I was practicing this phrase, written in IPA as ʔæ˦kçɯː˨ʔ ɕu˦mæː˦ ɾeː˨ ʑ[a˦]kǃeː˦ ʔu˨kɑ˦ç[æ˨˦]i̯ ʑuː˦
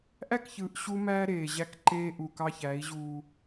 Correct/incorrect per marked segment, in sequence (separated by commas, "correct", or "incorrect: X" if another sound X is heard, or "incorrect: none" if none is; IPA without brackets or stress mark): incorrect: æ˦, correct